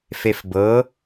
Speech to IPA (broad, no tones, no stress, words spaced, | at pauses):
fefbɤ